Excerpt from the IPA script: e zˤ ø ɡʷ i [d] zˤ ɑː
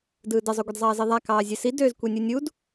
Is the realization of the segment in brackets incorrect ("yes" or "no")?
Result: no